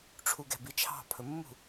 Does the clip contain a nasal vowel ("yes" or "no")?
no